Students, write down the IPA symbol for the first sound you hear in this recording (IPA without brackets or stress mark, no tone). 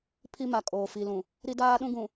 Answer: pʰ